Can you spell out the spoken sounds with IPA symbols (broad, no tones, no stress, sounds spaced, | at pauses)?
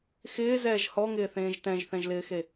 x ɪː z ɛː ʒ h ɔ ŋ ɪː θ ẽː ʒ t ɛ̃ ʒ θ ɛ̃ ʒ l ɪː x e